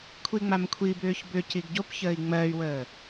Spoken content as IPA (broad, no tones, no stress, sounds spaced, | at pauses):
kʷʰ i ŋ͡m a m kʷʰ i b ʏː ç b ʏ c i ɡ ɟ o p ç əː i̯ ŋ͡m ɜ y̯ w əː